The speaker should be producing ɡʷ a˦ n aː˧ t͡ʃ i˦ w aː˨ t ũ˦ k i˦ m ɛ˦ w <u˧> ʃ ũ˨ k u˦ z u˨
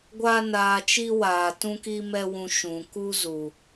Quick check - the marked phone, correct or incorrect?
incorrect